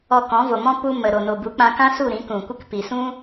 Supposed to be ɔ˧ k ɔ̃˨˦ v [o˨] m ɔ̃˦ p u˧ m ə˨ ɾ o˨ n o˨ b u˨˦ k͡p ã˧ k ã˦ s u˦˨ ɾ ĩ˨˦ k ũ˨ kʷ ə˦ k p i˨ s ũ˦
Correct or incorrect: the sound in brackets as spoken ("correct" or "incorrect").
correct